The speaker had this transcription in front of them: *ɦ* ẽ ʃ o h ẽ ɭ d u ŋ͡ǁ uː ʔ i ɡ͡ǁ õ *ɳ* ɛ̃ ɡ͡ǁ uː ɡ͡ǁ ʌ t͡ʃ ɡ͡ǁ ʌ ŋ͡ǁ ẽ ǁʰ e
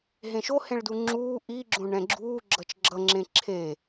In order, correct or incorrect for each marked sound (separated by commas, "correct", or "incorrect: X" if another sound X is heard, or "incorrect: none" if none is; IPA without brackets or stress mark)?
correct, correct